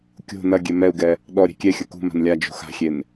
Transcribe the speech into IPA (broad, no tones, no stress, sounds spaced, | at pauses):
kʲ o̤ n ɐ ɡʲ ɛ m ɛ u̯ ɡ ɛ | ɗ ɔ ɾʲ e̤ kʲ ɛ xʲ ɐ k ṳ m a̤ n lʲ a d͡ʒ o̤ x a̤ xʲ e n